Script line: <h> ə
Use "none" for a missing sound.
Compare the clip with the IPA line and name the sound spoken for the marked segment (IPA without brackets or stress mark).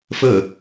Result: f